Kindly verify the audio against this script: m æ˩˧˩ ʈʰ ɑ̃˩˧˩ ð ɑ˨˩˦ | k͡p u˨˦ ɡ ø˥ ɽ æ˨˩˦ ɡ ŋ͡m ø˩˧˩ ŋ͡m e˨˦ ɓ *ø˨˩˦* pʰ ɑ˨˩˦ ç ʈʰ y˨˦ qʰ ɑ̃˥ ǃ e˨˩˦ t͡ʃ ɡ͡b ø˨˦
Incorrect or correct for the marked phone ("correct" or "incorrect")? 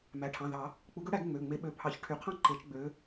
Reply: incorrect